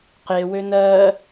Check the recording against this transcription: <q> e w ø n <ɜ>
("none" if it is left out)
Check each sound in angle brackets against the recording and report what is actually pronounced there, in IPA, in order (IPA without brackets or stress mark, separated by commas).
q, ɜ